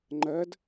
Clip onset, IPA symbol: ŋ͡ǃ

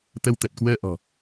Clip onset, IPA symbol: t̪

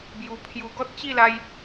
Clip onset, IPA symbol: b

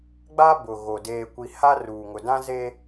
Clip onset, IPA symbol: ɡ͡b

